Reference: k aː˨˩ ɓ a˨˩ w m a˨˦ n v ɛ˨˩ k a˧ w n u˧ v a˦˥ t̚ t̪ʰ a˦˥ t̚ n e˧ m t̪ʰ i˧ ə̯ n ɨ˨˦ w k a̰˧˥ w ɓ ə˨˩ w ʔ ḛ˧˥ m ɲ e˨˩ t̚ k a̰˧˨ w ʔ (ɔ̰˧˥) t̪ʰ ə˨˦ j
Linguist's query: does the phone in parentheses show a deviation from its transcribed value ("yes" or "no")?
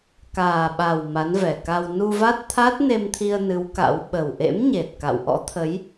no